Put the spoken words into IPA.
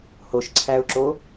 h o ʃ ǀʰ æ ʊ̯ ǁ o

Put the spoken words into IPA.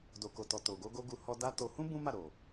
d o˨ k o˨ t ɔ˨ t o˨ ɡ o˧ ɡ o˧ ɡ u˧ h ɔ˧ d a˦ t o˧ h ũ˦ b ũ˦ m a˦˨ ɾ o˨

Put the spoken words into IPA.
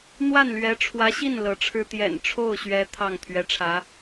n̪ w a˥˩ n l ɥ ɛ˧˥ ʈ͡ʂʰ w ä˧˥ ɕ i˥˩ n l ɤ˧˥ ʈ͡ʂʰ ɻ̩˥ t̪ j ɛ̰˨˩ n ʈ͡ʂʰ o˥˩ ʊ̯ ɕ ɥ ɛ˧˥ t̪ʰ ɑ˥˩ ŋ t̪ʰ ɥ ɛ˧˥ ʈ͡ʂʰ ä˧˥

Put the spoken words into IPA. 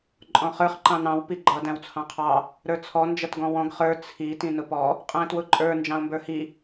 ǃʼ ɔ̃ χ ə˞ χ ǃ ɑ̃ n ɑ̃ w p i ɡ͡ǃ ʌ d æ̃ w t͡sʰ ɑ̃ qʰ ɑ | ɾ ə˞ t͡sʰ ɔ n d͡ʒ ʌ t ɡ ɔ̃ w ɔ̃ ɡ χ ə˞ t͡sʰ i t ĩ n ʊ p ɔ | qʼ æ̃ t w ʊ ǃʼ ə˞ n d͡ʒ ɑ̃ o̯ m b ə˞ h i

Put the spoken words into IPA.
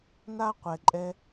n a˦ qʷ ɛ˩ ǃʼ ɛ˨

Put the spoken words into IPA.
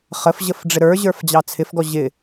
χ ə f ʑ ə f ɖ͡ʐ ɪ ɾ ə˞ ʑ ə˞ f d͡ʑ ɑ t͡sʰ ɪ f ɡ ɔ ʑ ɪ

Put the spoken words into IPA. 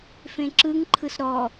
f ẽ ǁ ɯ ŋ ǃʰ ɯ s ɾ ɔ

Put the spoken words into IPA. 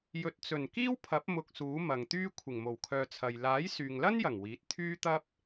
j ɵ˨ t̚ t͡s ɵ˨˩ n k iː˥ w pʰ ɐ˨˥ p̚ m ʊ˧ k̚ s uː˨˥ m ɐ˨ ŋ t̪ yː˥ kʷʰ ɪ˨˩ ŋ m o˨˩ w kʰ œː˨ t͡sʰ ɐ˨ j l aː˨˥ j s yː˨ ŋ l ɐ˥ n j ɐ˨˩ ŋ w iː˨˥ t̚ t̪ʰ yː˥ t̪ ɐ˥ p̚

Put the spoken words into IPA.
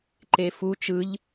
ǃ e f u t͡ʃ ɯ ʎ

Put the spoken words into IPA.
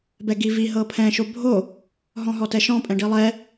b ɛ ɡ i v i ɦ ɤ pʰ ɛ̃ ʃ o bʱ o | ɦ ɔ̃ ɦ ɔ t ɛ ʃ ɔ̃ pʼ ɛ̃ ɖ i lˠ ɛ

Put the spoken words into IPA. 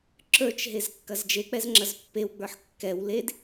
ǁ ə˞ t͡ʃ ɦ e z kː ɐ z d͡ʒ e k͡p ɛ z ŋ͡ǁ ɐ z pː e w ɡ͡b ə˞ ħ kː ɛ w l e d

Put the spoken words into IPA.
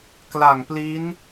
k l a˨˩ ŋ p l i˦˥ n

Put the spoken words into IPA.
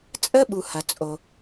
t͡sʼ ə˥ ɓ u˨ h ɐ˨ t͡sʼ o˨

